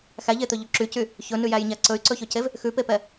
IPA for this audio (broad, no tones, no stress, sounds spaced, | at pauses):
x æ ʎ e t̪ ɵ ʎ ʉ ǁ y c y | ç ɵ n ʉ j æ j ɲ æ ǀ ɵ y̯ ǀ ɵ ç ɵ c e v | x ʉ p e p ɛ